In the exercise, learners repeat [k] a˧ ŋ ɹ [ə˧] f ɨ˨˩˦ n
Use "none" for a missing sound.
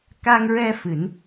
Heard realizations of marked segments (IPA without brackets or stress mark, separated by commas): k, ɛ˧